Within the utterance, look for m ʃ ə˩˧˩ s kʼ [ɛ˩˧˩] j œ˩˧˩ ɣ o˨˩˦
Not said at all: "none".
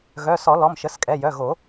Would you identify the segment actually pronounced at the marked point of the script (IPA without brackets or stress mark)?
ɛ˩˧˩